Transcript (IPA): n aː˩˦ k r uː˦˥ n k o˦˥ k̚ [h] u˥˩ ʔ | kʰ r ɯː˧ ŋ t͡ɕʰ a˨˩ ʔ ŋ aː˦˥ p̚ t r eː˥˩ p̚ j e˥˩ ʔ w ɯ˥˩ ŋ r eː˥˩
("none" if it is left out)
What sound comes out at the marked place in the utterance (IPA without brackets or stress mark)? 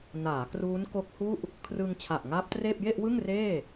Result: h